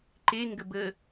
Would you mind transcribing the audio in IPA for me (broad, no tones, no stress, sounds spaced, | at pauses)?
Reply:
ǃ e ŋ ɡ ə b ə